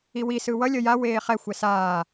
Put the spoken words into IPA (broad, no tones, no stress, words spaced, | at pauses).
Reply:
iwi sɯwʌ lʲʌja weːχɛ xʷɛsaː